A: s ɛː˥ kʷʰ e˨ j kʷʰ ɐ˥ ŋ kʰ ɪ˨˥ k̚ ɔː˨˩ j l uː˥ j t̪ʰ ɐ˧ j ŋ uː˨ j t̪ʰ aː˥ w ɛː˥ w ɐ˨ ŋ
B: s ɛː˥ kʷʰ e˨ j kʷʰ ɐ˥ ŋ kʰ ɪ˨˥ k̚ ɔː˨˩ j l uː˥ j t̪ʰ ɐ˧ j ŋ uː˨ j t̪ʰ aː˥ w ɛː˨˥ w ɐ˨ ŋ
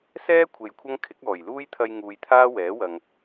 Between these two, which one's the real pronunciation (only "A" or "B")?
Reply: B